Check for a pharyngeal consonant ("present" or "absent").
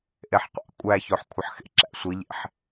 present